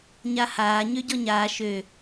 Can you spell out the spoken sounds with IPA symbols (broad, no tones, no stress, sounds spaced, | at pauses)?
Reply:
ɲ a h aː ɲ ø ɟ ɔ ɲ aː ʃ ø